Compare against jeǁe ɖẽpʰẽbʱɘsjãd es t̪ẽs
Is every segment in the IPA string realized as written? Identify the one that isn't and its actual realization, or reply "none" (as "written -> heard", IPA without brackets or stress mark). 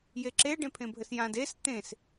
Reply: none